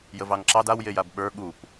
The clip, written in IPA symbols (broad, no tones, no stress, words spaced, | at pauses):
jəvɑŋǁɑd awjej abɓə˞ ɠup